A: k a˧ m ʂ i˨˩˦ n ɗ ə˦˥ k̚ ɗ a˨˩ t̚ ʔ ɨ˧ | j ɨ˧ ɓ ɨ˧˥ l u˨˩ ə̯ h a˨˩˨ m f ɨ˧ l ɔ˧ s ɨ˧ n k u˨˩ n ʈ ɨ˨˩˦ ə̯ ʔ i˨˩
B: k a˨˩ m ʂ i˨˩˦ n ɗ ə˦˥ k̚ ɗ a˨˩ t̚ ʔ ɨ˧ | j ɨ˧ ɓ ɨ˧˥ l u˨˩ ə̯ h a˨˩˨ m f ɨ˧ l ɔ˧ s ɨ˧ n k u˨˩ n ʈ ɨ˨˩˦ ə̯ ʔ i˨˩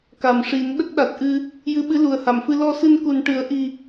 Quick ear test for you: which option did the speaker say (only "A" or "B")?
B